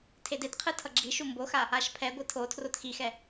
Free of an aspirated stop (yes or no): no